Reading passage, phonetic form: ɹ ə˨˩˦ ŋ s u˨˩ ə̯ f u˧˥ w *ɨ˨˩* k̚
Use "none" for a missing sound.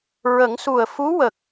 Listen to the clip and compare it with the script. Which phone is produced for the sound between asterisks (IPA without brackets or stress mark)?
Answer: ə˨˩